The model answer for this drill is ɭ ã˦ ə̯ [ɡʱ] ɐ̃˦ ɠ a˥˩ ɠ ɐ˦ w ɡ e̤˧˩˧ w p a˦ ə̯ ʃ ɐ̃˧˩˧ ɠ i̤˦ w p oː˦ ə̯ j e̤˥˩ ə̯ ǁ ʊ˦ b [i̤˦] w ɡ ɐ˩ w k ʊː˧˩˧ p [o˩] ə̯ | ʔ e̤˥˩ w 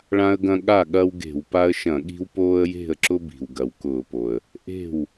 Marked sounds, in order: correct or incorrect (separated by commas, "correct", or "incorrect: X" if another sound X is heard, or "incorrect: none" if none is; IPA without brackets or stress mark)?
incorrect: ɡ, incorrect: i̤˩, correct